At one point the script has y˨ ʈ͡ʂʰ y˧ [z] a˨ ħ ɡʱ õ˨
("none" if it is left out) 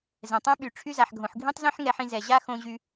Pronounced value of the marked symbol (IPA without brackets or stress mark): z